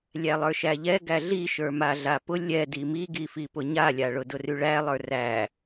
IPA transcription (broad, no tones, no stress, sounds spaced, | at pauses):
lʲ æ lˠ ə˞ ʃ æ ʎ ɛ ɡ æ ɮ i ʃ ə˞ m a ɮ a p ʊ lʲ ɛ d i m i ɡ i f i p ʊ ɲ a lʲ a ɭ ʊ d ʊ r y ɭ æ lˠ ə˞ r æ